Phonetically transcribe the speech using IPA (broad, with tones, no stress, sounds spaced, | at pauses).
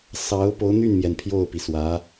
s ɑ˧˥ ʊ̯ p o˧˥ ʊ̯ n̪ y˥˩ n m j ɛ˩ n pʰ j o˥˩ ʊ̯ p i˩ s w ä˧˥